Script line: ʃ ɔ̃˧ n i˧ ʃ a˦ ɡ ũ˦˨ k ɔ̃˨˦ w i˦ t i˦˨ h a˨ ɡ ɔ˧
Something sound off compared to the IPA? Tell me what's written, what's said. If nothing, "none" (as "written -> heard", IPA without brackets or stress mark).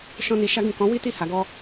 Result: none